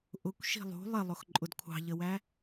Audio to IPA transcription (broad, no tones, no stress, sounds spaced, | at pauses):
ʔ ʊ kʷ ʃ i̤ lˠ ṳ lˠ ɪ lˠ ʊ x ǃʼ ʊ d kʷʰ ɑ̤ ʎ ə w æ